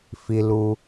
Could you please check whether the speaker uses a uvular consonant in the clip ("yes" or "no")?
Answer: no